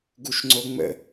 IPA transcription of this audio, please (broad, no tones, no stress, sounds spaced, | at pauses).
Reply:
ɡ u ʃ ŋ͡ǀ o ŋ͡m ə̰